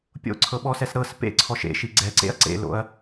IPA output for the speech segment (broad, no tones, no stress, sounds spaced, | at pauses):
pʲ o̰ ǀʰ ɤ ɓ ɔ s ɛ s ɾ ɤ s p ḛ ǀʰ ɔ ʃ ḛ ʃ i ɡ͡ǀ ɛ ǀ ḛ ɐ̯ ǀ ḛ l o̰ ɐ̯